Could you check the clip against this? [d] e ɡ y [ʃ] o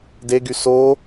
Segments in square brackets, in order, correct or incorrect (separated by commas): correct, incorrect